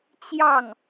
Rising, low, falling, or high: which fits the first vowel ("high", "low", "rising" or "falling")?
falling